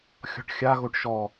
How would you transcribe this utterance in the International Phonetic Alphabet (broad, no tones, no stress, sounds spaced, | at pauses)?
xʲ ɔ̤ ʈ xʲ a ɣ o ʈ ʃ ɔ